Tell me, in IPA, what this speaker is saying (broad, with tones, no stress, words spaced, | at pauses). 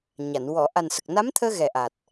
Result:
ɲa˨˩˨n wɔ˨˩˨ ʔa˨˩nsə˨˩k̚na˧˥mt̪ʰəː˧ ɣɛ˨˩ʔa˨˩t̚